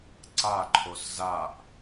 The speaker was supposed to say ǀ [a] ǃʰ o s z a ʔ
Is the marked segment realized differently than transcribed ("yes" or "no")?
no